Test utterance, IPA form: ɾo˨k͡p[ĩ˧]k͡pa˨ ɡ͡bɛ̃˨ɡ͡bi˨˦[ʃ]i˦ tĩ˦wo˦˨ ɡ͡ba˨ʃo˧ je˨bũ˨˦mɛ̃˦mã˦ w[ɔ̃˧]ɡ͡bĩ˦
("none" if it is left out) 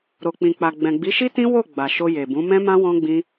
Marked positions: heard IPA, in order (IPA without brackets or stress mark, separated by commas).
ĩ˨, ʃ, ɔ̃˦